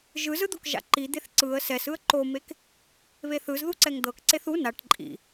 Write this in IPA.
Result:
ʒ ɯ z ɯ d̪ o k ʒ a̰ ǃ i d̪ e θ ǀ ɯ ə̯ s ɛ s ɯ ə̯ ǃ o m e k | β e θ ɯ z ð u ǀ ɛ ŋ d̪ ɤ k ǀ e θ u n a ʈ ǃʼ ḭ

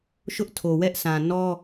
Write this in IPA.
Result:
ʃ ʊ˦ ʔ tʰ o˨ w ɛ˦ ʔ sʰ ã˨ n ɔ˦

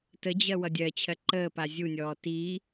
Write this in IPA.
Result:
t ə d͡ʑ ɜ w ʌ dʲ ɜ t͡ɕʰ ɜ ǃ əː p a zʲ u nʲ ɔː t i

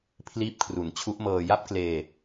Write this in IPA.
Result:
pʰ l iː˦˥ p̚ kʰ r u˩˦ n t͡ɕʰ u˦˥ ʔ m ɤː˧ j a˥˩ p̚ k l eː˧

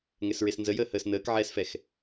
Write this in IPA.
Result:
ŋ ɛ s ɹ e s n z ə j əː h əː s n əː k ʕ ɛː s f ɛ x

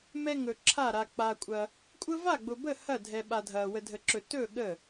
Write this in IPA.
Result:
m ɛ˦ ŋ ɵ˨ ǁʰ a˥˩ ɾ a˨ k͡p a˨ kʷʼ ɐ˨ | kʷʼ ə˦ v a˥˩ ɡ͡b ʊ˨ b ə˥˩ h ɐ˥˩ dʱ ɛ˨ ɓ a˨ dʱ ɐ˨ w ə˨ dʱ ə˨ ǁ ɵ˨ t ɵ˥˩ ɠ ə˥˩

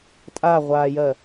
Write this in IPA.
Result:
tʼ a ʁʷ aː j ɜ

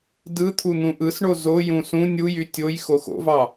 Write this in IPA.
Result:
d ɯ t̪ʰ u n̪ ũ ʔ ɯ s ɳ o z o j ũ s ũ nʲ u j y tʲ o j x o x o̰ v ɑ

